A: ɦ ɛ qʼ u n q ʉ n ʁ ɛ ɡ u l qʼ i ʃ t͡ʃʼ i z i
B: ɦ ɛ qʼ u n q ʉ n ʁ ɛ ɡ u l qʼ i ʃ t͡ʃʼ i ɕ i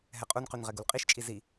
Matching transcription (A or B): A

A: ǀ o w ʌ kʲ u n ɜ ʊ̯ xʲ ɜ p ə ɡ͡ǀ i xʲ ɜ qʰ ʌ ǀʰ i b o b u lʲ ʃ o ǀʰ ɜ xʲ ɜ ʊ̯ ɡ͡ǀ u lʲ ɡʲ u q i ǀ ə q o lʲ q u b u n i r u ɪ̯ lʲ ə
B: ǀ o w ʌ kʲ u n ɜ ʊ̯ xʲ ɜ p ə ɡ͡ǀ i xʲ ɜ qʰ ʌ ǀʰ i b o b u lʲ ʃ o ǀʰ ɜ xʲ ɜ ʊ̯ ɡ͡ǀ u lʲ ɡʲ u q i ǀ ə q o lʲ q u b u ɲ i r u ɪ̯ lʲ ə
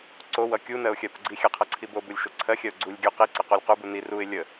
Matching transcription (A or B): A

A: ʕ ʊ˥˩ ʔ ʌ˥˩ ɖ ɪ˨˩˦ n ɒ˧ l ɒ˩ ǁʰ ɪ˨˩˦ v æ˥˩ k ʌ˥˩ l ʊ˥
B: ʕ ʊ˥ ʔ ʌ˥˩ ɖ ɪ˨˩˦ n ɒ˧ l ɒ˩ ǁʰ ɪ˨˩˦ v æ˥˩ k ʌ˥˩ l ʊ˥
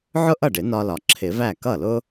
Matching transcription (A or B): B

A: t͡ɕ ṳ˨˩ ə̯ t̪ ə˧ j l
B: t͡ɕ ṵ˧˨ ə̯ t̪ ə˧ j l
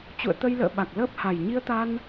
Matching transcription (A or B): B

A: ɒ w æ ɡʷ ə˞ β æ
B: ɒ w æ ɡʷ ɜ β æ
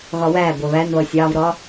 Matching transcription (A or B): B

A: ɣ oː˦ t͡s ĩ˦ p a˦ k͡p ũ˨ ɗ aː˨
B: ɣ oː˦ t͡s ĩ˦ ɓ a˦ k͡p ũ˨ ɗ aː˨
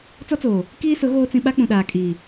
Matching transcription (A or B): B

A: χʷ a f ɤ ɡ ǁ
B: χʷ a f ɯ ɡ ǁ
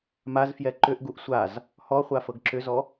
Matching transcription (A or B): A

